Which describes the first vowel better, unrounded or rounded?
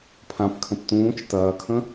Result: unrounded